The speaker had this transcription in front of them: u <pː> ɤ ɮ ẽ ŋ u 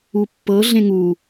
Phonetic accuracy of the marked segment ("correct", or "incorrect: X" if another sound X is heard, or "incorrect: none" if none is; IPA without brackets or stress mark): correct